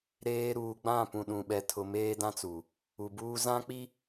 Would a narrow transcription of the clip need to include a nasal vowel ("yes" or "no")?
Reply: yes